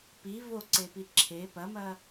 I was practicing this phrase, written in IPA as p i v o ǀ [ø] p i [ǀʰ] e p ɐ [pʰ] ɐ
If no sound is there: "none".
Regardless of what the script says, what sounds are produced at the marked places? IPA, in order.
e, ǁʰ, m

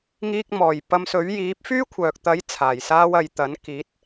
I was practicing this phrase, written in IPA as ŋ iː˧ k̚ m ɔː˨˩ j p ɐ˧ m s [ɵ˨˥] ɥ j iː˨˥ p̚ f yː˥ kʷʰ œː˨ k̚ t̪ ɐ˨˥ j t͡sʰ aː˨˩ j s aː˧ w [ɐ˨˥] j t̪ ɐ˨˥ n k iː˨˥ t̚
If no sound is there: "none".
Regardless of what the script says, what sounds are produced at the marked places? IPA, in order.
ɵ˨˥, ɐ˨

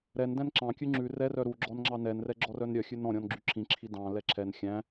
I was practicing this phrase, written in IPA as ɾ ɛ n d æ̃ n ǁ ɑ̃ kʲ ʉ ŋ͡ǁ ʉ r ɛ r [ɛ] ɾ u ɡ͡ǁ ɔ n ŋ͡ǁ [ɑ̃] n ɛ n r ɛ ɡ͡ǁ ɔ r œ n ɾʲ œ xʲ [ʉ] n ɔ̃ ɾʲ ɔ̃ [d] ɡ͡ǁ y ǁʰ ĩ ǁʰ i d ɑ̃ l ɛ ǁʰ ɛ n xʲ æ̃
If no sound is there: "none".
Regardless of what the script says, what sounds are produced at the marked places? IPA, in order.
œ, ɑ, ʉ, n

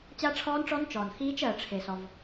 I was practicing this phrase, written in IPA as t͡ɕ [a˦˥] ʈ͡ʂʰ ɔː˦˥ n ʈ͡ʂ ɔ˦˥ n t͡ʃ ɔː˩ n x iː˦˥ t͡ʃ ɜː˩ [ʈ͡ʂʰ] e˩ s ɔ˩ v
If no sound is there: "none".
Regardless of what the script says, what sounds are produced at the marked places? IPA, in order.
a˦˥, ʈ͡ʂʰ

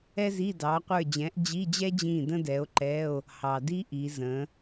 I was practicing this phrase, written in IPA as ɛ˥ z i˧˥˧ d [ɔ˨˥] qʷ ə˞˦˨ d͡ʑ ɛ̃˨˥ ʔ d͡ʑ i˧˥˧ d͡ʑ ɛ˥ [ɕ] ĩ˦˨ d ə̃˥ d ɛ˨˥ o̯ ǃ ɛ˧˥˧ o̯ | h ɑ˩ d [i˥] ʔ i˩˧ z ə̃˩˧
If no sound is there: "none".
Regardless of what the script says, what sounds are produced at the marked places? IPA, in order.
ɑ˨˥, d͡ʑ, i˥

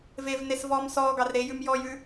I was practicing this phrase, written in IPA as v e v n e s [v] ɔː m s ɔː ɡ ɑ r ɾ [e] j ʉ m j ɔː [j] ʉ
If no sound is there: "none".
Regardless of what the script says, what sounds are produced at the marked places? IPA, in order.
v, e, j

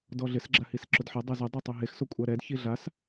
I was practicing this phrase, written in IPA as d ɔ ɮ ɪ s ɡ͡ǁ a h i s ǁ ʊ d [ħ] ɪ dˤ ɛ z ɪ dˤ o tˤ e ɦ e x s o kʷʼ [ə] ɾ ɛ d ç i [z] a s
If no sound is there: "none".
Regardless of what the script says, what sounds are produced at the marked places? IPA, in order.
ħ, a, ɮ

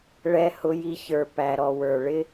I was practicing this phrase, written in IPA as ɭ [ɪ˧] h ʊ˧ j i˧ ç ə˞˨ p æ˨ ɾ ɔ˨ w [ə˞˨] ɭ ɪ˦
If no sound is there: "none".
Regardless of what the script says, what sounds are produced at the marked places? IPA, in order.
ɛ˧, ə˞˨

